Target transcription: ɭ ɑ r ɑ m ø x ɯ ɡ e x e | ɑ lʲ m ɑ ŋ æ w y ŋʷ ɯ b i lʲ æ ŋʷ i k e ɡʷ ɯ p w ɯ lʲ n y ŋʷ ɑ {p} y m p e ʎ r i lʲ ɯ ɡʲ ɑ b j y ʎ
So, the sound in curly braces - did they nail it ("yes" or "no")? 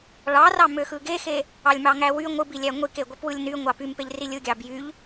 yes